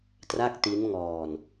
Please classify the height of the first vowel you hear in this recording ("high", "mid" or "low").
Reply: low